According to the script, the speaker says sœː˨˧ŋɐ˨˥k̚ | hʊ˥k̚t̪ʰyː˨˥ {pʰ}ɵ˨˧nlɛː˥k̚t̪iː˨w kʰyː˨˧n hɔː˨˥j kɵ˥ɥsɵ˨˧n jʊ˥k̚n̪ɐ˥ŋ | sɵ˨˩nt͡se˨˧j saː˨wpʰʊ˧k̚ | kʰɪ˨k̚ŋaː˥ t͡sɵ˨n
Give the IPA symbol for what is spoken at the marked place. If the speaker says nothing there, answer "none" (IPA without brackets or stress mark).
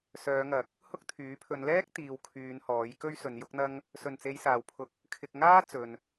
pʰ